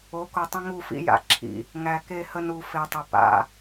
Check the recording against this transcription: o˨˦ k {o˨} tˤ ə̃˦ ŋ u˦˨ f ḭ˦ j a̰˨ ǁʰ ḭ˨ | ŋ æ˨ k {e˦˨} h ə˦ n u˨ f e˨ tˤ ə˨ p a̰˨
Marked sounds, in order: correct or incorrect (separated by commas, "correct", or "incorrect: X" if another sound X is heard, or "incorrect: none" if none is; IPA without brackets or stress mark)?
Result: correct, correct